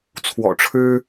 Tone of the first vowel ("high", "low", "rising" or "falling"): low